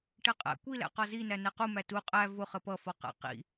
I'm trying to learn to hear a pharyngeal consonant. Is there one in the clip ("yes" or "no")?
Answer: no